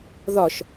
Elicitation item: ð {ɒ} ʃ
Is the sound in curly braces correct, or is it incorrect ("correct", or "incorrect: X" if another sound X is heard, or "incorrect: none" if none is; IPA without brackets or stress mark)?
correct